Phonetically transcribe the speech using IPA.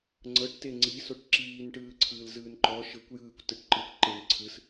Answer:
ŋ͡ǀ ɤ ʈ t e ŋ͡ǀ i s o ʈ ǁ iː n ʈ ɯː ǀʰ ɯː l z ɯː n ǃ ɔ ʃ ɤ kʷ j ɯː kʷ t ɯ ʈ ǃ ɯ kʷ ǃ e n ǀʰ ɯ s

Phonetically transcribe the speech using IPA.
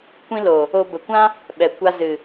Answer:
kʷ ĩ˧ l o˨ | o˧ b ə˨ kʷ ã˦ | ɓ ɛ˨ kʷ a˧ z ɨ˨

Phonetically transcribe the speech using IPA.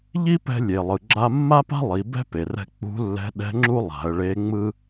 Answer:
ʎ i˥ p ɛ̤˧ lʲ e˩ lˠ ɯ˩ ɡ͡ǁ a˧ mː a˥ p a̤˥ lˠ i˩˧ b ɛ̤˥ p e˩ r ɛ̤˧ k͡p ṳ˧˥ lː ɛ̤˧˥ ɗ ɛ̤˧˥ ŋ͡ǁ u˥ lˠ a̤˩˧ ə̯ ɭ e˧˥ ŋ͡m ɯ˥

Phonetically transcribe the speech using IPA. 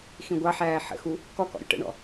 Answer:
x ĩ ɡʷ ɑ ħ æː ħ ə̰ x u | k ɔ k ɔ̰ ɾʲ ṵ ʈ ə̰ ɳ ɔ̰

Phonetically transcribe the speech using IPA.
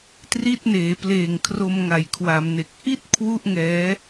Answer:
t r i˥˩ t̚ n eː˩˦ p l eː˨˩ ŋ kʰ r o˧ m ŋ a˨˩ j kʰ w a˩˦ m n e˨˩ k̚ ʔ i˥˩ t̚ kʰ w u˥˩ ʔ ŋ ɛː˦˥

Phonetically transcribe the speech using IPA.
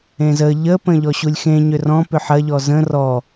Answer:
ẽ z ə ʎ ə p ə̃ ʎ ɔ ɕ u lʲ x ẽ ɲ ʏ r ɔ̃ p ʏ ħ ɐ ʎ ɔ z ə̃ r ɔ

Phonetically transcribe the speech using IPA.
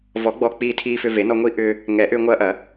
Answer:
v ɔ˨˩˦ ɡ͡b ɔː˧ k͡p iː˧ tʰ iː˧ f ʏ˧ v e˨˩˦ n ɔ˧ ŋʷ i˦˥ ʔ ʏː˧ | ŋ ɛ˨˩˦ ʔ ʏː˧ ŋʷ ɐː˦˥ ʔ ɐ˨˩˦

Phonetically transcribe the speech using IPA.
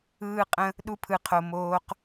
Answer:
ɯː˦ qʼ ə̃˦ | ɗ u˦ pʰ ɯ˧ qʰ o˧ m oː˦ q

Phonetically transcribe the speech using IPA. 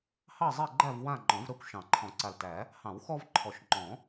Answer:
h ɑ˦˨ zˤ ɛ˦˨ ɡ͡ǃ æ˦˨ v w ã˦˨ ŋ͡ǃ ɔ̃˨˩˦ v ɾ ɜ˦˨ kʷ ʃ ɑ̃˨˩˦ ǃʰ ɔ̃˨˩˦ ǀ a˨˩ l t æ˨˩˦ | h ɑ̃˨˩˦ w x ɔ˦ v ǃʰ ɔ˨˩ ʃ ŋ͡ǃ ɔ̃˨˩˦

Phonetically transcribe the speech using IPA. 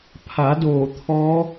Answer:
pʰ a˩˧ d oː˧˩ t̪ʰ ɔː˧˥

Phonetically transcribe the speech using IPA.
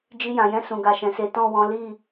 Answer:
d͡ʒ i˧ j ã˨ j ɛ̃˧ s ũ˨ ɡ a˨ ʃ ɛ̃˨ s e˨˦ t ɔ̃˦˨ w ɔ̃˨˦ l i˦˨

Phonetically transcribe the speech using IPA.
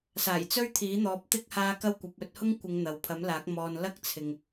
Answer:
s aː˨˩ j t͡s ɵ˥ ɥ t̪ʰ iː˨˥ n̪ ɔː˨˥ p̚ t̪ ɪ˥ k̚ h aː˧ k ɐ˥ w kʷ ɐ˨˥ p̚ ɵ˧ t̚ h ʊ˥ ŋ kʷ ɪ˨˧ ŋ n̪ ɐ˨ w pʰ ɐ˨˥ m l aː˨˥ k̚ m ɔː˨ n l ɐ˥ k̚ t͡sʰ ɪ˨ ŋ

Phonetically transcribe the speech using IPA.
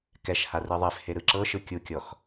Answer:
k ɛ ʃ h a r ɯ ðˤ e f h e ɾ ɯ ǁ ɤ ʃ ɯ kʲ u kʲ ɔ x

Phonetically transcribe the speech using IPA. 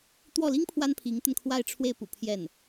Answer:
t̪ w ɔ˥˩ l i˥ ŋ pʰ w a˥ n pʰ i˧˥ ŋ t̪ ə˧ n kʰ w a˥˧ ɪ̯ ʈ͡ʂʰ w e˥˩ ɪ̯ p ṵ˨˩ pʰ j ɛ˥˩ n

